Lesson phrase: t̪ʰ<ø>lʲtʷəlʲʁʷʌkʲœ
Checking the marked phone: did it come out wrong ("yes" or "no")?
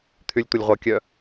yes